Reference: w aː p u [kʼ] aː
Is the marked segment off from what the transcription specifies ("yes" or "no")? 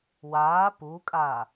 no